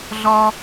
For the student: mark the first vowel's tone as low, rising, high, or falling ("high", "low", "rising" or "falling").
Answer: high